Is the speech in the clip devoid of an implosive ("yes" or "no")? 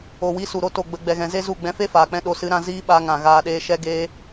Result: no